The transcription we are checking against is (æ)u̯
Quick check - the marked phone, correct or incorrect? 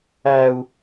correct